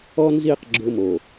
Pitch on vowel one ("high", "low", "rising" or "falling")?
high